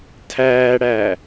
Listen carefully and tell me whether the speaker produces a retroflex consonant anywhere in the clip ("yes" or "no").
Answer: yes